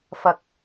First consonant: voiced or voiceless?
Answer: voiceless